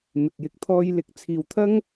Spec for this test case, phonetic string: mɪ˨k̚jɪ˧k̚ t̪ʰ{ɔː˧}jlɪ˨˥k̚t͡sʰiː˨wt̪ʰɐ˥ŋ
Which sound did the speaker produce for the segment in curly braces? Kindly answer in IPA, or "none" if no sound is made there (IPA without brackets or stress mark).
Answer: ɔː˧